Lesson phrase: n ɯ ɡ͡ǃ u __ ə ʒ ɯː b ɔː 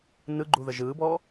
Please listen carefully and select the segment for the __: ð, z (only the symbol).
ð